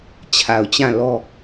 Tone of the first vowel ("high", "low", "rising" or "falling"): low